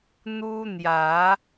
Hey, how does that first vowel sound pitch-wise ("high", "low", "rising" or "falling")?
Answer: high